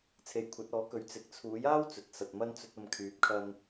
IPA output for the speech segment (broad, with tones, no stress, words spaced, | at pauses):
t͡sʰe˨˧jkʷʰɐ˨˥t̚ɔː˨˥kɵ˨˥ɥ t͡sɪ˨k̚t͡sʰuː˨˥jaː˥w t͡sɵ˨t̚sɐ˨t̚ mɐ˧nt͡sɵ˨t̚ɐ˨m kʰyː˨˥p̚kʰɐ˧n